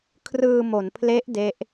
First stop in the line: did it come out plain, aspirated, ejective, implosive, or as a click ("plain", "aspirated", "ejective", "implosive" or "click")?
aspirated